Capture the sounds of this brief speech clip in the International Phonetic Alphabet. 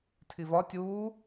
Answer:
tʰ i v ɒ tʲ uː

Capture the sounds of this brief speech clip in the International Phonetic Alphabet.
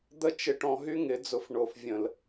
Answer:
d̪ ə˦ t͡ʃ ɪ˧ ʈ ɔ̃˧ ɦ y˦ ŋ ɪ˨˦ d͡z ʊ˧ f ɳ o˨ f vʲ ə̃˨ l

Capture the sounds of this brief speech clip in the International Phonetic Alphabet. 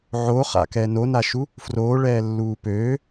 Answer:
ʕ o χ a̰ k ɛ n o n a ʃ u | f r oː ɭ ɛː lː uː p øː

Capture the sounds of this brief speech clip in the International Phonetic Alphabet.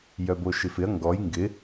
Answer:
j œ b o ʃ ɪ f ɪ ɐ̯ ŋ ɡ ɔ j ŋ ɡ ɪ

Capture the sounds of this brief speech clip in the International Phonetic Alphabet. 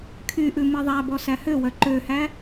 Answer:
kʰ y ʔ ʉ m i ðˤ æ b ɔ s æ h ø w œ ǃ ø h æ

